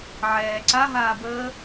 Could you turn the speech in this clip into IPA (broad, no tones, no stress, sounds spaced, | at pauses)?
ʕ ɛː ǀ a ɦ aː b əː